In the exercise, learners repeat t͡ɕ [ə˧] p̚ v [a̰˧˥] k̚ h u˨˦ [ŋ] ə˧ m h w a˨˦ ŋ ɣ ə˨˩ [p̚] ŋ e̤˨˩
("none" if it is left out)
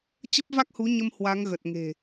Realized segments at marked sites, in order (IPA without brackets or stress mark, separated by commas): ə˦˥, a˦˥, ɲ, t̚